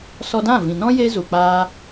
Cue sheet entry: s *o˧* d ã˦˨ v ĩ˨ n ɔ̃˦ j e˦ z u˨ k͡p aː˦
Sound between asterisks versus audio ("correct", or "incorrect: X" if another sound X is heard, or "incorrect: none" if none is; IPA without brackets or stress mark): incorrect: ɔ˧